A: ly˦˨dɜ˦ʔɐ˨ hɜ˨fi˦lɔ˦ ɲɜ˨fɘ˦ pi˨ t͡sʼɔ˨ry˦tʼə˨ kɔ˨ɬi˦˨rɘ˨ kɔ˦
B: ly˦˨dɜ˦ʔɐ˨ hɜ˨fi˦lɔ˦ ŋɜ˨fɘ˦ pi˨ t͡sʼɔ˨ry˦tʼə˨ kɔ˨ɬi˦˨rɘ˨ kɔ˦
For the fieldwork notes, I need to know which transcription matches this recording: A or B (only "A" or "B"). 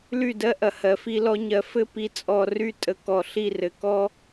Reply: A